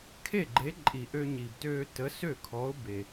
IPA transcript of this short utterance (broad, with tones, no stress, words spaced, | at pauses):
kʰe˥˩ɡ͡ǃe˨˥ ǃʼi˨˩ʔø˧ɲi˨˩btøː˧ tə˨˥sø˥˩kʰɔ˨˥ʊ̯ be˨˩